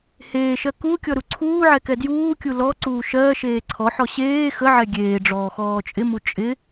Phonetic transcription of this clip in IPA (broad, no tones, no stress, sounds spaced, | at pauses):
h eː ʃ ɜ k u kʲ ɔ ɾ u ǀʰ uː ʕ ɛ k ɛ d j uː kʲ u l ɔ ǀ uː ʃ ɜː ʃ eː ǀʰ ɔ ħ ɔ ɕ eː x ə ʕ ɛ ɡʲ eː ɖ͡ʐ ɔː x ɔː t͡ʃʼ ɪ m u t͡ʃʼ ɪ